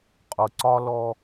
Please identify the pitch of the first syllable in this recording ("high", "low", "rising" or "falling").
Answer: low